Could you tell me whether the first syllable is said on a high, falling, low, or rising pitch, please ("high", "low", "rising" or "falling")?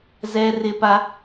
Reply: high